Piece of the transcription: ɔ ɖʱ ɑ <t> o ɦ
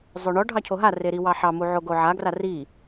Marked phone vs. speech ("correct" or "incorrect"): incorrect